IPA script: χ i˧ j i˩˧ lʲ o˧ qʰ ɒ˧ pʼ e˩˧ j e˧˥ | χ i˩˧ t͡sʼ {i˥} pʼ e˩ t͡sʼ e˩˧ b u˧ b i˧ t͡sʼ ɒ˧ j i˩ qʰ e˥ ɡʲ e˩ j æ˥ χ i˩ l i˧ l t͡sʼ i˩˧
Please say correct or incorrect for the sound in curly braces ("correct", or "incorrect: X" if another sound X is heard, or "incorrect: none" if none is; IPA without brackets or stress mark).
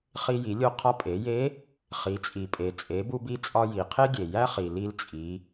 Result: incorrect: i˩